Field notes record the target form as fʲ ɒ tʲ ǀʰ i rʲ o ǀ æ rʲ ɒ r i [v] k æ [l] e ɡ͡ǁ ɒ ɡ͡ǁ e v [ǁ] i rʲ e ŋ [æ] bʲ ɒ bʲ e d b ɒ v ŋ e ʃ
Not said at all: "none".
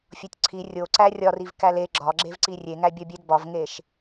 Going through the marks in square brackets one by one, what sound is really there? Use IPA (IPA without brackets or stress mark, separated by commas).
v, l, ǀ, æ